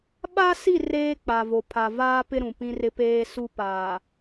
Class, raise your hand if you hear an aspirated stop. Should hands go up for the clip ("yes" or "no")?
yes